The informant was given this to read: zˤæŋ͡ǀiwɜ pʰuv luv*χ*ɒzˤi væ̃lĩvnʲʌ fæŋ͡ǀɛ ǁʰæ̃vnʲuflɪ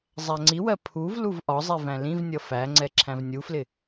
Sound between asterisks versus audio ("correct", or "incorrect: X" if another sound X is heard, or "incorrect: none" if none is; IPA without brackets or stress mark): incorrect: ʔ